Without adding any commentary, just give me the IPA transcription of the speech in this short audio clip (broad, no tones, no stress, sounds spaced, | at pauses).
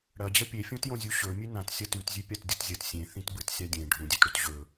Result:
ɽ ɐ d͡ʑ ɐ pʲ e fʲ õ t j õ zʲ u ɕ ɵ mʲ ʉ n ã t sʲ ɐ t ʉ t zʲ ʉ pʲ a t dʲ u t zʲ ɐ t sʲ ẽ θ ĩ t b ɨ t sʲ a dʲ ẽ ɖʱ ũ dʲ ʉ t ɽ u t ʑ ɵ